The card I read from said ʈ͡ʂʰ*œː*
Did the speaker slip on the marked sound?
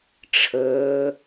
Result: yes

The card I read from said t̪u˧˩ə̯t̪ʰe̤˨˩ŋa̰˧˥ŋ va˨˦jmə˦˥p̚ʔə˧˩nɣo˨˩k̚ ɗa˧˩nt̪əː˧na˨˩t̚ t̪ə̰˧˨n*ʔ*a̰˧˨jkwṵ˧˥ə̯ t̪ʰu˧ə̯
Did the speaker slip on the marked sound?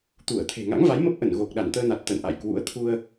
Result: no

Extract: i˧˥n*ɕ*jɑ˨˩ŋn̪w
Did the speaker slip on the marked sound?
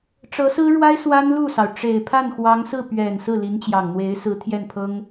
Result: yes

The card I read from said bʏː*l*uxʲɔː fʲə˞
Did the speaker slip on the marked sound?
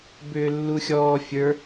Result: yes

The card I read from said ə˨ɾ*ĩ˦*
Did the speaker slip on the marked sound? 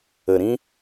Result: no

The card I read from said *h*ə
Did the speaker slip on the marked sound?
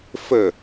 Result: yes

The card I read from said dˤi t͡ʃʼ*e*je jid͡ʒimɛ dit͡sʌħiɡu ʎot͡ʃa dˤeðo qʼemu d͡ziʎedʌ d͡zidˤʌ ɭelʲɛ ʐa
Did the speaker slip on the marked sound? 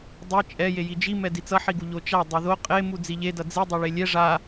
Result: yes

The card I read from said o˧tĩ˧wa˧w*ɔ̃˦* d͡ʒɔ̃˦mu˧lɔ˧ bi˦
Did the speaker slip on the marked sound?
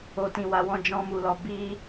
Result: no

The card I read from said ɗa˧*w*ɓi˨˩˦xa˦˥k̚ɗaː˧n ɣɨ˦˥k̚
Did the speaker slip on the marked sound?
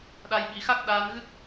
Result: yes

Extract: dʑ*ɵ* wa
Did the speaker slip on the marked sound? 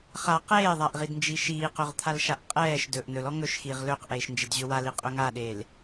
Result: no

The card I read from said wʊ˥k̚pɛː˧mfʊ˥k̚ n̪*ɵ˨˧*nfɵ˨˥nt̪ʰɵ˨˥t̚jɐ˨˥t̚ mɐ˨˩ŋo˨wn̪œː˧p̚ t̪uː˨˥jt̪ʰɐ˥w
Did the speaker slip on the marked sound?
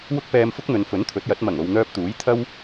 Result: no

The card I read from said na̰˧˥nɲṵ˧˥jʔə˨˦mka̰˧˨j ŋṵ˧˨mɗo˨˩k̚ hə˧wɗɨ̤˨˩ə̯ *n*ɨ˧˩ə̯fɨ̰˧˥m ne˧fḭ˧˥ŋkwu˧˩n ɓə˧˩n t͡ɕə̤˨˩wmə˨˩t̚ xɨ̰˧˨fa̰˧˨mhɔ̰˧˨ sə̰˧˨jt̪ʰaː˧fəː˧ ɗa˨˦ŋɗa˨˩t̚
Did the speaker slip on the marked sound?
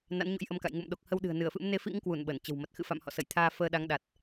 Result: no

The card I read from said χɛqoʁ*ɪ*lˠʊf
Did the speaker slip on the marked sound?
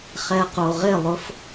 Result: no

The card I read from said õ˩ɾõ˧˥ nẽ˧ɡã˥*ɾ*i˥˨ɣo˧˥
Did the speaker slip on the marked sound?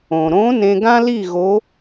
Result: yes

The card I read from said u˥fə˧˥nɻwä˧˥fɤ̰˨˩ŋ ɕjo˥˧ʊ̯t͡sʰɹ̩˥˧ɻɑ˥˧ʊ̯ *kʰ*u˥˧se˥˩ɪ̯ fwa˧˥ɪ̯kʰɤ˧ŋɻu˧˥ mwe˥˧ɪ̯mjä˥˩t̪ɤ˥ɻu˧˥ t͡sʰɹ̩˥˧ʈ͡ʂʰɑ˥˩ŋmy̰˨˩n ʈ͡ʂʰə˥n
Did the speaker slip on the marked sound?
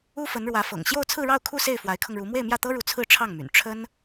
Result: no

